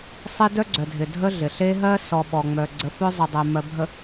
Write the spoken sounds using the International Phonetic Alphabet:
sˤ e˦ d œ˦ ɡ͡ǀ œ˨ dʱ ɪ˨ dʱ ə˦ ɮ ɪ˨ ɬ e˦ ɦ ɜ˦ s ɔ˨ ɓ ɔ˨ ŋ͡m œ˨ ɡ͡ǀ ə˨˦ f œ˦ zˤ ə˨ dˤ ɜ˨ m ɜ˨ bʱ ə˨

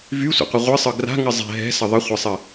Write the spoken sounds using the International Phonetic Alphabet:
v y sʷ ə̰ qʷ ə ʁʷ ɨ sˤ ɯ ɡ r a̤ ŋ ɨ zˤ ɛ̤ ɦ ɛ̤ s ə ðˤ ə χʷ ɛ sˤ ɨ

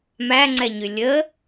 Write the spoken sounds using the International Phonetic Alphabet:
m æ ŋ͡ǀ ɛ ɲ y lʲ ə

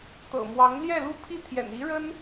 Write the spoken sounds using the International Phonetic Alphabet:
t̪ ɤ̰˨˩ m w ɑ˧˥ ŋ l j ɛ˥˩ l u˥ pʰ i˥˩ t̪ʰ j ɛ̰˨˩ n i˧˥ ɻ ə˥ n

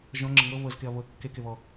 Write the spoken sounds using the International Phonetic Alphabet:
ʒ ɔ̃ ŋ͡ǁ ə ŋ ɤ β ɤ z k e ɐ̯ β ɤ kː e k e β ɔ

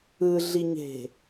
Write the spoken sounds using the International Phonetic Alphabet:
ɯ ɮ i ɲ e̤

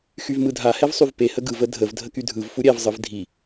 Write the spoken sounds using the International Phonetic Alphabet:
x y v m ɯ dʱ a h ɛ v sˤ y v p e h ə ɡ ɯ v ə dʱ ə v dʱ ə k y dʱ ɯ v f u ɾʲ ɛ v zˤ ɯ v dʱ i

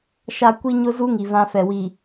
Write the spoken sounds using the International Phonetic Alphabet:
ʃ a˦ kʷ i˦ ɲ ʊ˦ z u˦ ŋ i˨ v ã˦ f ɛ˨ w i˨

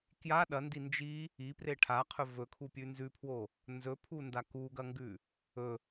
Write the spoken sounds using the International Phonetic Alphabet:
k j a ɗ ɐ n d i n d͡ʒ i | i p r e ʈʰ a qʰ ɵ v ɵ kʰ u pʲ ʉ n z ʉ pʰ w o | n z ɵ pʰ u n d a k u ɡ ɐ ŋ ɡ ʉ | ɵ

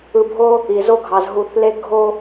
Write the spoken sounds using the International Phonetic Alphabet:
ɯ˨ bʱ o˦ | i˨ z o˦ ɡʱ ɑ˨ z ɦ u˨ θ l e˦ ɡʱ o˦

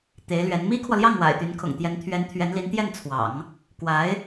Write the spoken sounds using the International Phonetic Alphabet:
t̪ e˧˥ ɪ̯ l ɥ ɛ˧˥ n m i˥ kʰ w ɔ˨ l j ɑ˥˩ ŋ w a̰˨˩ ɪ̯ t̪ y˧˥ n kʰ ʊ̰˨˩ ŋ t̪ j ɛ˧˥ n t̪ʰ ɥ ɛ˧˥ n t̪ʰ ɥ ɛ˧˥ n l i˧˥ n t̪ j ɛ˥˩ n t͡sʰ w ɑ̰˨˩˦ ŋ | k w a˧˥ ɪ̯

